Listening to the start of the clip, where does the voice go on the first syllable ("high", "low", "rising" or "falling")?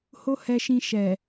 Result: high